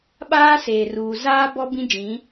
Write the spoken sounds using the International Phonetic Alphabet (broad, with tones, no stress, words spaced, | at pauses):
ɓaː˦seː˨ruː˨ zaː˦bɔ˦ bĩ˦d͡ʒĩ˨˦